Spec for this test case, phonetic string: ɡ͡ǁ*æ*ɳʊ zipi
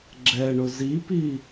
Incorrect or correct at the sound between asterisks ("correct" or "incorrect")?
incorrect